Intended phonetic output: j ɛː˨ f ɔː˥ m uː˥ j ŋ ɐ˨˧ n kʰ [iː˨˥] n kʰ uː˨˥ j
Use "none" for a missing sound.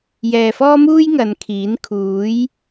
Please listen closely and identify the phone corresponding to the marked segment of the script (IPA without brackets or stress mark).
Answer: iː˨˥